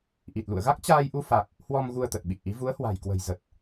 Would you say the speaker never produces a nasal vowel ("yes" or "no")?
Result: yes